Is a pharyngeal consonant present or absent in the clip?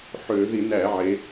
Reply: present